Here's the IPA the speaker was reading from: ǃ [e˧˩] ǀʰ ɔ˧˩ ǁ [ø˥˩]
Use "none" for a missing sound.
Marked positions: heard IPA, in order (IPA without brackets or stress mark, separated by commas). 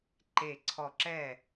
e˧˩, ɛ˥˩